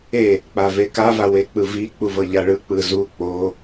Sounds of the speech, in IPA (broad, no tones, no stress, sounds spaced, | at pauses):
e | k͡p a v e k a v a w e k͡p ɯ v i k͡p u v ɤ ʎ a ɭ ɯ k͡p ɯ z u k͡p o